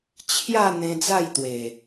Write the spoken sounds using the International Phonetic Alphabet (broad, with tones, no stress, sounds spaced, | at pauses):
t͡ɕʰ j a˥˧ n̪ ẽ˧ d͡z a˥˧ j t̪ w e˨˩